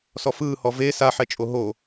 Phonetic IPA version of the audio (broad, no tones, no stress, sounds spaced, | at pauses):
s ɔ f ɯː h ɔ v e s a ħ ɛ t͡ʃʼ o ɦ o